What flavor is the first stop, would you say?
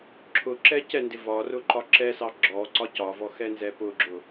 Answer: click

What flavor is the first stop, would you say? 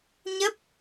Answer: plain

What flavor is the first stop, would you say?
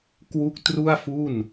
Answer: plain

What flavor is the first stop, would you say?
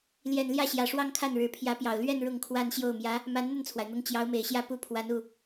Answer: aspirated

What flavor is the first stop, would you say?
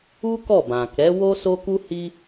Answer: plain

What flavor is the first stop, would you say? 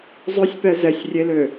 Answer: plain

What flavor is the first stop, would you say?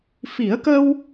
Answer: plain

